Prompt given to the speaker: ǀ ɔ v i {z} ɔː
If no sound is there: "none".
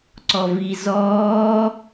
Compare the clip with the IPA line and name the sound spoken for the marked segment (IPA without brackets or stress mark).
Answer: z